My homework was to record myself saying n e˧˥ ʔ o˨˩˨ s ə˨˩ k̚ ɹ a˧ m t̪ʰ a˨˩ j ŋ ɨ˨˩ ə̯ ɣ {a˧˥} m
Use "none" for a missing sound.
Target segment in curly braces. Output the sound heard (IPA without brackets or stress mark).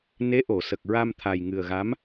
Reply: a˧˥